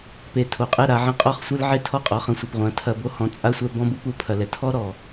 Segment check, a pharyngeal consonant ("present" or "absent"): present